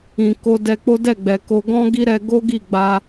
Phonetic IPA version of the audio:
ĩ˨ko˧ dɛ˧k͡po˦dɛ˦˨ɡ͡bɛ˨ ko˧ɡɔ̃˦ɡi˦ɾɛ˧ ɡo˦ɡi˦˨ɡ͡ba˧

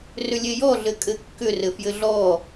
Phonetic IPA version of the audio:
rʏlʲejɔɮɘ kʼɘkːʏ rɘfjɘɮɔ

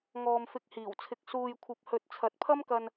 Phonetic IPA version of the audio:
ŋɔː˨mfɪ˨k̚hiː˨˩wt͡sʰɪ˨k̚ suː˨jkʷʰɐ˨p̚hɵ˨t̚ t͡sʰɐ˨˥t̚pʰɐ˥mkɐ˧n

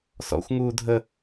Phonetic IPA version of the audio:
sɔ̰xʷŋuː dʱə

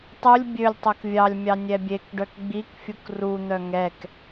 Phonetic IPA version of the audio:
tˤulʲ bʲølʲ tˤœkvʲɑlʲmʲɑ nʲɛbʲekɖœk ɡ͡bikfʲuk run̪œ ŋɛk

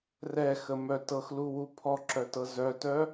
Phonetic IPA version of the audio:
rɛxəmœ tɤxluwu pʰɔǁœtɤ zœtœ

